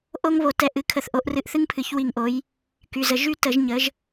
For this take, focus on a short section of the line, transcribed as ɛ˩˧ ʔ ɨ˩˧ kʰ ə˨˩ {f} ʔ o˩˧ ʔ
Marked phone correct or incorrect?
incorrect